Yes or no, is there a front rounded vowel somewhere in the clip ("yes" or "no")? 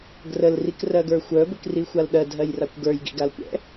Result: yes